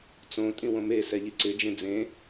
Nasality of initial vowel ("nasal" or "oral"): nasal